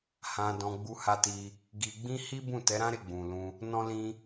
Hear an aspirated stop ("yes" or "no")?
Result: no